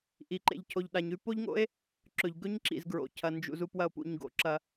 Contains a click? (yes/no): yes